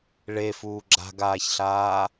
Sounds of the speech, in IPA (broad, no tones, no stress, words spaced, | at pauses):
ɭefuː ɡ͡ǁa̤ɡaːçɬaː